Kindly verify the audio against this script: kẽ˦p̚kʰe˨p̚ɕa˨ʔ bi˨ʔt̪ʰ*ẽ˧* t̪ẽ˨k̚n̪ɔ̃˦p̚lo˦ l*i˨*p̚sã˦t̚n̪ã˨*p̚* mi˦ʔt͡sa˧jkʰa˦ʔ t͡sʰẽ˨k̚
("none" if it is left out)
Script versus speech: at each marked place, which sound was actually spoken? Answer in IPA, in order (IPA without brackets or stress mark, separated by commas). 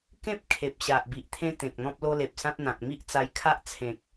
ẽ˦, e˨, k̚